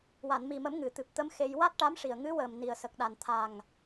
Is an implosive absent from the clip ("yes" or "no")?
no